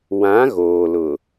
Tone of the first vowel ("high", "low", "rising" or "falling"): rising